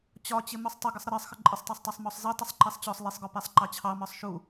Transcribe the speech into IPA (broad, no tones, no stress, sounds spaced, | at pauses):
t͡ɕ ɒ t͡ɕ ɪ m u sˤ tˤ ɪ ɡ ɪ sˤ ɾ ə ɾ ɜ sˤ x ə ǃʼ ɪ sˤ tˤ æ sˤ tˤ ɑ sˤ m ɔ sˤ z i tˤ ɪ sˤ ǃ ɛ sˤ t͡ɕ ɔ sˤ lˠ i sˤ ɡ ɔ p ɛ sˤ ǃ ɑ t͡ɕʰ ɑ m ɒ sˤ ʃ u